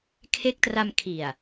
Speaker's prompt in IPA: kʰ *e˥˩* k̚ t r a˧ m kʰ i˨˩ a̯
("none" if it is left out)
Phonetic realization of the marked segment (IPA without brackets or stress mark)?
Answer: e˦˥